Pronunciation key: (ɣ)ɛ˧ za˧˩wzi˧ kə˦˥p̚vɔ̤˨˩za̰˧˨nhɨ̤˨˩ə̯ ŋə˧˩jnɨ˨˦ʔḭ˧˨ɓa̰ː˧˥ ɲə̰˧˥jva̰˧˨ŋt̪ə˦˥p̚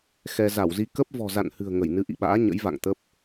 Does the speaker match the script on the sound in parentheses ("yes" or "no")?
no